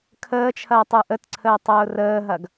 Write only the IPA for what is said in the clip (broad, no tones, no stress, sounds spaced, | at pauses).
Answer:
kʰ əː t͡ʃʰ ɐː tˤ ɯ ʔ ə t ǀʰ əː tˤ ʊː r əː ɦ ɐ ɡ